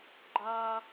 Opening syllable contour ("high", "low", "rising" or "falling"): high